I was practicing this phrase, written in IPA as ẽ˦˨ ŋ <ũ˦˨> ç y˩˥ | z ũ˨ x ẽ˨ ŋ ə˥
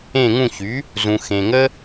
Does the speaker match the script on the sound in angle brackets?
yes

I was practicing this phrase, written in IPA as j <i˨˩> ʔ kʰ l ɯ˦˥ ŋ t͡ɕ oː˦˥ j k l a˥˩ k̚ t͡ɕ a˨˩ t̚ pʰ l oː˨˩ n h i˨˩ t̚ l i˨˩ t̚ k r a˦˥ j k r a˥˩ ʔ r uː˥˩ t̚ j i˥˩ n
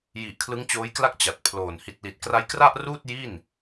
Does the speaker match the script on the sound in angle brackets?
yes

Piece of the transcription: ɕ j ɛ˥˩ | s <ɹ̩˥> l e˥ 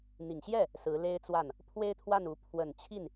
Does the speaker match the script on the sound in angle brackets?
no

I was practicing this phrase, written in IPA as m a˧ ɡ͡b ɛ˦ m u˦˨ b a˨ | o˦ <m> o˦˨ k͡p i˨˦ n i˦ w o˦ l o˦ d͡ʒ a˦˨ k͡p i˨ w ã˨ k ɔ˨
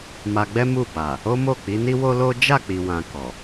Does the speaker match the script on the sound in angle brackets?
yes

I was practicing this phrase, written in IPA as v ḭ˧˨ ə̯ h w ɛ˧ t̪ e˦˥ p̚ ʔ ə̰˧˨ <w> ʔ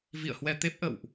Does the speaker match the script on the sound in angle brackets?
yes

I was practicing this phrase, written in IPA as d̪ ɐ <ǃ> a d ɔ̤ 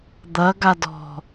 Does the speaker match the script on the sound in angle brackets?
no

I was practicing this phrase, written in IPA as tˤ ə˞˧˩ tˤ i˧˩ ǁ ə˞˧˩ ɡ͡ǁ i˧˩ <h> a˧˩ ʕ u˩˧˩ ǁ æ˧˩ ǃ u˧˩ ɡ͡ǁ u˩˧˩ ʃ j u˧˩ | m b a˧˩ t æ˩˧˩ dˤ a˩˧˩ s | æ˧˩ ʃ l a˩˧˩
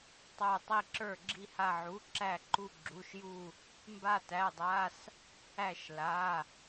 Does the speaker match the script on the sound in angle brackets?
yes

